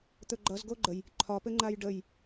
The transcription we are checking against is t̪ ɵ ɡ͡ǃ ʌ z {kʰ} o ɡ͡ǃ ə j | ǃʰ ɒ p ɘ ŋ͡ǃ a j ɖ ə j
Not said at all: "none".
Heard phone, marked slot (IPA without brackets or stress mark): ɡ